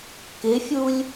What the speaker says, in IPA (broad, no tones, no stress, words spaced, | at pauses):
kɪfʲulʲ